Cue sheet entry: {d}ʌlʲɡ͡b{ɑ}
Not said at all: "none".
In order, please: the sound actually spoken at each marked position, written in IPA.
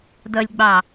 d, ɑ

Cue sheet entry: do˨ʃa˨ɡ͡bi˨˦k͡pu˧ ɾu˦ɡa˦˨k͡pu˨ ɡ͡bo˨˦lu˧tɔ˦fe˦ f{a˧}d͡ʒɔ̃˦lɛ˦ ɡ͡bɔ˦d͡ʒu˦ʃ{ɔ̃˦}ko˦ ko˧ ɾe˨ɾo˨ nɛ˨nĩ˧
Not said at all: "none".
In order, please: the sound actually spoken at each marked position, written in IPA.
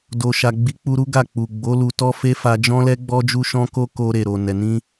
a˧, ɔ̃˦

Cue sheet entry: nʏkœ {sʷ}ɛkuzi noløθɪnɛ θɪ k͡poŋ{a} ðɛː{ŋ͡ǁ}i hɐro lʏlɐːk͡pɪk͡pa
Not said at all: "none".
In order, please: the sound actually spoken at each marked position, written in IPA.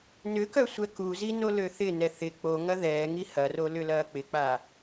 sʷ, ɐ, ŋ

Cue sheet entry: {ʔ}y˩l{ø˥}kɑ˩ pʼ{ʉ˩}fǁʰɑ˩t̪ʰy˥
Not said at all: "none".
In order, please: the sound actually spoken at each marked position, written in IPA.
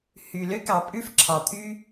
h, ø˥, ʉ˥

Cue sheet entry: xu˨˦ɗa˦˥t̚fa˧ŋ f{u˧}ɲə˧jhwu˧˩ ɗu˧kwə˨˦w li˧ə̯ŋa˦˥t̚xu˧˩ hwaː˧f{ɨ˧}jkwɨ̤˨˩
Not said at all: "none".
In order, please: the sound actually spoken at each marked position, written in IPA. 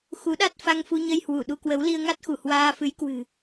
u˧, ɨ˨˦

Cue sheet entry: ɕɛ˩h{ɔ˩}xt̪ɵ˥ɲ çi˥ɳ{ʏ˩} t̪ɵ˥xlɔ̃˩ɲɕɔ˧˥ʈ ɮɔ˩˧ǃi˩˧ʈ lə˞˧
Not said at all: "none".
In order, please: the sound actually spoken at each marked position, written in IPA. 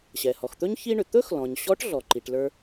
ɔ˩, ʏ˩

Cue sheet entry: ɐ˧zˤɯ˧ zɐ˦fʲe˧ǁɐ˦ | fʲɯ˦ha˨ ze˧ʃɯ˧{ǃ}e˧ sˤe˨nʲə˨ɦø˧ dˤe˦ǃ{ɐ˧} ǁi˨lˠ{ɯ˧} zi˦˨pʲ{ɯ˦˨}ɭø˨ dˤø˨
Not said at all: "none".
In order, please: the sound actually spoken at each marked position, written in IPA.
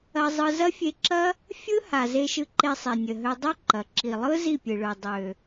ǃ, ɐ˨, ɯ˦, ɯ˨

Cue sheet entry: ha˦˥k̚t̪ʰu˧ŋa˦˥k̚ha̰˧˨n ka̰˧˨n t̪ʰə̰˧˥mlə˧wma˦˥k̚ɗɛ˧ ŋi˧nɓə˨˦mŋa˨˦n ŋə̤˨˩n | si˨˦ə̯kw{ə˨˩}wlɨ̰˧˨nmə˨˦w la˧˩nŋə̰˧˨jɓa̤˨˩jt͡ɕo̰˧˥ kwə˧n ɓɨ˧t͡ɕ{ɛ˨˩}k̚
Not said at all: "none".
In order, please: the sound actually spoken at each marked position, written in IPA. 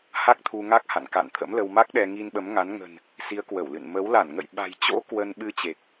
ə˧˩, e˨˩

